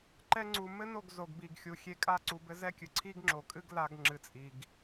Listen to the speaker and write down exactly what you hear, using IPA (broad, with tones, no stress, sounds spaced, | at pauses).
ǃ ɛ˧ ŋ͡ǀ u˨ m ɘ˦ n o˦˨ ɡ z o˨ ɡ b i˨ ɡ xʲ u˨ xʲ e˧ kʼ a˦ ǀ u˨ b ɘ˧ z ɛ˦ kʲ ɨ˨ ǀʰ i˦ ɡ ŋ͡ǁ o˨ kʼ ɨ˦ ɡ l a˦ ɡ ŋ͡ǁ ɨ˧ t͡sʼ i˧ ɡ